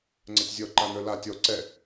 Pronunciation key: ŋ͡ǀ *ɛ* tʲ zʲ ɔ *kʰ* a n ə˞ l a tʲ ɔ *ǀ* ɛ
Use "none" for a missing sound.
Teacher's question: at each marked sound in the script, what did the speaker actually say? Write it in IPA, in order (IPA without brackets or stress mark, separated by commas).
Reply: ɛ, ǃ, ǀ